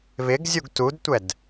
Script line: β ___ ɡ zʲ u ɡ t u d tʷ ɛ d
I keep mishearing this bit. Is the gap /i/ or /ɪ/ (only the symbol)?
ɪ